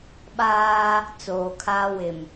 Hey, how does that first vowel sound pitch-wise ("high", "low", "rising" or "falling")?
high